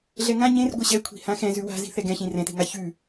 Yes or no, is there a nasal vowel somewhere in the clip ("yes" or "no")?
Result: yes